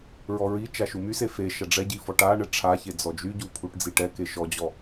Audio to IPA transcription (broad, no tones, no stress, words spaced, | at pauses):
ɹɔɹit͡ʃa ʃumyse fe ʃaɖ͡ʐɛɟi fɔʈaɳɛ ʈ͡ʂʰaçe d͡zɔd͡ʒyɟu pʰuʈd͡ziʈɛke ʃɔd͡ʑɔ